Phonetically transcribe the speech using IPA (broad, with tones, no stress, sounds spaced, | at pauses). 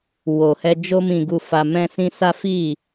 w o˨ h ɛ˧ d͡ʒ o˧ m ĩ˨ ɡ u˨ f a˨ m ɛ̃˧ s ĩ˧ s a˦ f i˦˨